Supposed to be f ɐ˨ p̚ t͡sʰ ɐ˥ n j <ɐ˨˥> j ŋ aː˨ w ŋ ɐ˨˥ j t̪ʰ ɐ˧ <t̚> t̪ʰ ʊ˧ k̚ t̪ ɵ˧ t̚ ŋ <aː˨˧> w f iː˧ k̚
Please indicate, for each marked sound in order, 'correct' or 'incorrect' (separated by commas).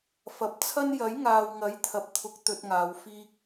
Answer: correct, incorrect, correct